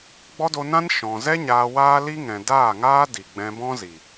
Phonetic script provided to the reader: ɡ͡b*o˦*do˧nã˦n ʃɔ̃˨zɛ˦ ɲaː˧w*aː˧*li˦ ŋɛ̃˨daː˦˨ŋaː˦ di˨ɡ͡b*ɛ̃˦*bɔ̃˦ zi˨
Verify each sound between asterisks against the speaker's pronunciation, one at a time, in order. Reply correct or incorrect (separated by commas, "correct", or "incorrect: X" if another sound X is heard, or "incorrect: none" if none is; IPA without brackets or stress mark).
incorrect: ɔ˦, incorrect: aː˦, incorrect: ɛ̃˧